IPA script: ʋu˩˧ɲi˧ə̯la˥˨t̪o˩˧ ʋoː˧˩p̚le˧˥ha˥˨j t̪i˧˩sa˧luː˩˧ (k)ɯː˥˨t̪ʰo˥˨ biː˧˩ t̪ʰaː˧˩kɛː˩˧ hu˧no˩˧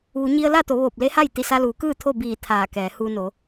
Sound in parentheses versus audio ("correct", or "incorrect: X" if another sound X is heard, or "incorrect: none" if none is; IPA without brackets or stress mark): correct